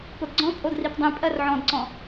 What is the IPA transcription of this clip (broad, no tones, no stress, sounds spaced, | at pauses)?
p o d ɡ͡ǀ ɔ̃ pʼ o d r i p dˤ ĩ pʼ ɜ r ʕ ɔ̃ d ǀ ɔ̃